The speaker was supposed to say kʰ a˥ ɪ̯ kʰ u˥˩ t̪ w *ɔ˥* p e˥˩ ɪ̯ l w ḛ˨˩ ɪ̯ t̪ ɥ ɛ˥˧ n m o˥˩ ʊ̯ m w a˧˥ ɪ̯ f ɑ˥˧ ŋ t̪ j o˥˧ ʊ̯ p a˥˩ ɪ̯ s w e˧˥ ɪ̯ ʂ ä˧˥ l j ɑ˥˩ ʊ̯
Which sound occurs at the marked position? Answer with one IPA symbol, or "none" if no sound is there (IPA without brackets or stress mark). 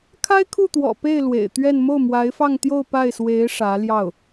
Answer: ɔ̰˨˩